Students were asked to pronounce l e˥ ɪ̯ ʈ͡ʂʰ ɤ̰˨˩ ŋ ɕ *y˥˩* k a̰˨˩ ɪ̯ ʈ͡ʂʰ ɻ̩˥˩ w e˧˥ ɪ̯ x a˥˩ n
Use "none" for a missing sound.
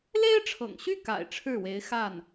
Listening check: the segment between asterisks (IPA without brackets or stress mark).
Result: y˥˩